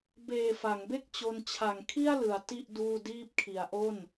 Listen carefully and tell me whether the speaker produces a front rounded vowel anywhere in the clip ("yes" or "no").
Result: no